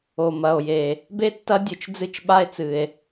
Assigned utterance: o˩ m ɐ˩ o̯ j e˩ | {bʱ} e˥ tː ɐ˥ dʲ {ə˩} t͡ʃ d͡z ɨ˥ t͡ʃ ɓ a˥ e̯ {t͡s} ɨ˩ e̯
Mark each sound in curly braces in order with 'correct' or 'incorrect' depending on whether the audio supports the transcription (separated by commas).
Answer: incorrect, incorrect, correct